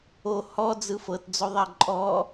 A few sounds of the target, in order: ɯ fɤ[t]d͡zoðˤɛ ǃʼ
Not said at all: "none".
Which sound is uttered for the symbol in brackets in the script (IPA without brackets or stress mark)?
t